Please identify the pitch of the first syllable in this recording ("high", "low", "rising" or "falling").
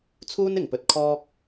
high